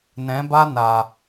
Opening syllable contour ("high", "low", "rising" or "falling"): rising